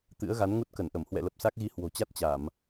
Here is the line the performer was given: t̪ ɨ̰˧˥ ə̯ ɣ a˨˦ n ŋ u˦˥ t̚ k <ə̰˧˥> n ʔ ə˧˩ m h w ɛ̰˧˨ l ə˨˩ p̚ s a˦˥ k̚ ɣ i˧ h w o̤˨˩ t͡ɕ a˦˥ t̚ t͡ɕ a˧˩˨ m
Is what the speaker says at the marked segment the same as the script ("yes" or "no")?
no